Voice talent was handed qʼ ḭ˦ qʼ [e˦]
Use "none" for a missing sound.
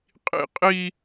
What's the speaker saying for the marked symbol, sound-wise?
i˦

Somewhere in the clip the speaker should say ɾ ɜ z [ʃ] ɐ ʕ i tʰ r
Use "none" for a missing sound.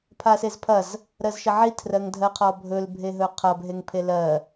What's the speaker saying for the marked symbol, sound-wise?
ʃ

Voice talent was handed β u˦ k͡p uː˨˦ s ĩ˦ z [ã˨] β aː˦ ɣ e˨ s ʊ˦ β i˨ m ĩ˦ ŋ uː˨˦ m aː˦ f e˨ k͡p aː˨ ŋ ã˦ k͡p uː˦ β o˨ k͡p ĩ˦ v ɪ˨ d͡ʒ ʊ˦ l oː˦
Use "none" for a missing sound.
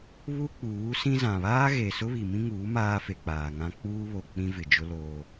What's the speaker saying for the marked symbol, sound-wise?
ã˨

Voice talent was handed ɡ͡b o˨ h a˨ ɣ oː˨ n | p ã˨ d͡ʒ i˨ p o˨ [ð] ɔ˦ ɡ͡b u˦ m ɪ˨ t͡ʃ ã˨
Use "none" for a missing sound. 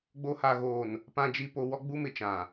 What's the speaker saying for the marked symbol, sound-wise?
w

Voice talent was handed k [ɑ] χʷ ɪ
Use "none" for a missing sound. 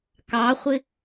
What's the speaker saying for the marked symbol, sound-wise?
ɑ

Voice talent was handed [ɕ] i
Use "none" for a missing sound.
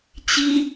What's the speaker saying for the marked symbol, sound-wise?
t͡ɕ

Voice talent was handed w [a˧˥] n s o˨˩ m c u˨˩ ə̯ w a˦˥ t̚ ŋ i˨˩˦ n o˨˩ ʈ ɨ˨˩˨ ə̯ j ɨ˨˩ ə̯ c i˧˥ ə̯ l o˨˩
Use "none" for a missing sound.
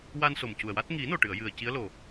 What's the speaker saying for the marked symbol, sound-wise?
a˧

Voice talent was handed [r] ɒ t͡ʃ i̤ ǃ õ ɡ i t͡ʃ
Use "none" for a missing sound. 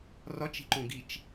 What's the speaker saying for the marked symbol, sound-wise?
r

